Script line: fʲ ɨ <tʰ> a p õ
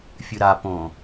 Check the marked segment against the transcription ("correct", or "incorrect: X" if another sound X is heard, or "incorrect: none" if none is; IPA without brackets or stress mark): incorrect: ɾ